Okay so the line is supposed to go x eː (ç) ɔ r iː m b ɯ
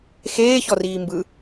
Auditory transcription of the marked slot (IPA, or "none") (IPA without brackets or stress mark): ç